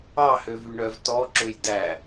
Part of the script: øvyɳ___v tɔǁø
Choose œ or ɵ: œ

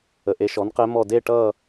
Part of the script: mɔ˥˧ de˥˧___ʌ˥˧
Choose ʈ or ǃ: ʈ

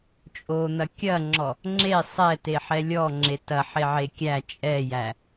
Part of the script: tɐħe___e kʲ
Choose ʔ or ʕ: ʕ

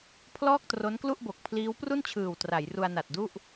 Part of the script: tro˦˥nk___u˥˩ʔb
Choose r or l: l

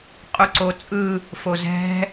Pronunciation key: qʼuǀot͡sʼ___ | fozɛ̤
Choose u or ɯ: ɯ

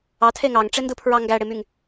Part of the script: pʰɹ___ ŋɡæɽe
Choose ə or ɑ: ɑ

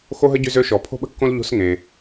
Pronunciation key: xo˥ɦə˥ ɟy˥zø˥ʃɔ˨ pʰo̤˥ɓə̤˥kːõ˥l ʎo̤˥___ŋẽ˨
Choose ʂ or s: s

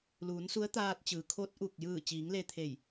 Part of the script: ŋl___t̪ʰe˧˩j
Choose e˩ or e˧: e˧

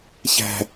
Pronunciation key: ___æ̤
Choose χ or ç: ç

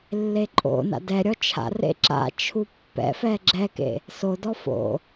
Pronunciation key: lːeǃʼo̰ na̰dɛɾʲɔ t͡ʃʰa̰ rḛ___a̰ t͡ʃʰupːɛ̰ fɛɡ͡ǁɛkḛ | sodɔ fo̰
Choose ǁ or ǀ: ǁ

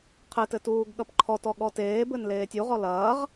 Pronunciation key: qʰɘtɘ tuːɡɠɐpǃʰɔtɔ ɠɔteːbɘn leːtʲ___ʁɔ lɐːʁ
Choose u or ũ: u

